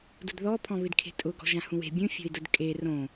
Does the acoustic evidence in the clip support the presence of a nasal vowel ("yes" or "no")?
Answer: yes